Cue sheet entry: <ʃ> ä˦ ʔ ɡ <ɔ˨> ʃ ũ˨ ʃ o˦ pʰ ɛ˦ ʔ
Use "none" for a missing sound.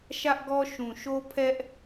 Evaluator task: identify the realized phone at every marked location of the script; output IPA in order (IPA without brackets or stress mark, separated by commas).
ʃ, ɔ˦